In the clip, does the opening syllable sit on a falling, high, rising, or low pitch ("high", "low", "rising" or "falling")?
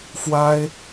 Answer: high